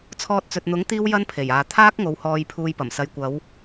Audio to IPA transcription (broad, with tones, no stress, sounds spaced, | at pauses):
t͡sʰ ɔː˧ t̚ t͡s ɵ˨ t̚ n̪ ʊ˨˥ ŋ t̪ iː˥ w j ɐ˥ n pʰ e˨˩ j aː˨ t̪ʰ aː˥ k̚ ŋ o˨˧ w h ɔː˧ j pʰ uː˧ j p ɐ˨˩ m s ɐ˨ j kʷ ɐ˨˧ w